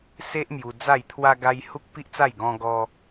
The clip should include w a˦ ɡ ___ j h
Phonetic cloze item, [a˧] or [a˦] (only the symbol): a˦